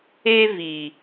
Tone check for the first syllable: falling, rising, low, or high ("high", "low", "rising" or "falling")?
high